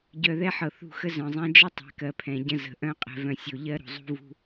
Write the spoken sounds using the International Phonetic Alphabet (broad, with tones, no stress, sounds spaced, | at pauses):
ɟ œ˨ ð ɛ˦ ħ ɤ˨ θ ṳ˦˨ x ə˦ z œ̃˨ zˤ ɛ̃˦ d͡ʒ ə˦ tˤ ɛ̤˨˦ k ɜ˨ pʰ ɛ̃˨ ɟ ə̃˦ z ə̤˨ ʔ œ̃˦ qʼ ɛ̤˨ v œ̃˨ sʲ o˨ ʎ ɜ˦ ɾ ṳ˨ zˤ ṳ˦ v ṳ˦